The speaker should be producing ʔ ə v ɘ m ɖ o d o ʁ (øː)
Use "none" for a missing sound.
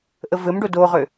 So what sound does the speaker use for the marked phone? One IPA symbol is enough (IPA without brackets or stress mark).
ø